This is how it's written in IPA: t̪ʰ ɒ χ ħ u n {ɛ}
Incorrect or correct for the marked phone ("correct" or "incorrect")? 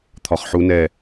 correct